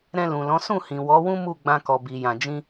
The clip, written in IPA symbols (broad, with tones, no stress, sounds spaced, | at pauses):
ɾ ɛ̃˧ l ũ˨ l ɔ̃˨˦ s ũ˦˨ h ĩ˨ w ɔ˨˦ w ũ˦ m u˦˨ ɡ͡b ã˧ k ɔ˨ b i˨ j ã˨ d͡ʒ ĩ˧